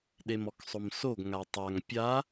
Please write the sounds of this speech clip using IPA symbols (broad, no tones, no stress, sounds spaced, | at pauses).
ɗ e m ɔ k sˤ o m s o ɡ ŋ a tˤ a ŋ pʲ a